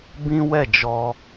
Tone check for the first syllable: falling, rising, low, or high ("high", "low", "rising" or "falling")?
high